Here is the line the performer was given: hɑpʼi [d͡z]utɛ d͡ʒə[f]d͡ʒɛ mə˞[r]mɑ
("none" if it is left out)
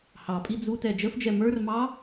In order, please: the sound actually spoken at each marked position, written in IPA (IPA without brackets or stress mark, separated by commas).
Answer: d͡z, f, r